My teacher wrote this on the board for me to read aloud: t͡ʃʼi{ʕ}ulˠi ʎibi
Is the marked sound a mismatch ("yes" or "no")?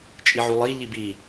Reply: no